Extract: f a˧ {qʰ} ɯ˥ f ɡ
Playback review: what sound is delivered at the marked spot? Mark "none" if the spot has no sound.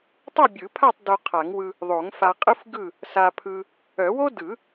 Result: qʼ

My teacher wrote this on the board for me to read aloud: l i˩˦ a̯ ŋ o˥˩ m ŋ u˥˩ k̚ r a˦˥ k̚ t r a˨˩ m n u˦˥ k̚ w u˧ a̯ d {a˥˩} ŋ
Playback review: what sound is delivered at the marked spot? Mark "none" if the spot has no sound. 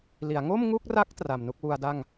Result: a˥˩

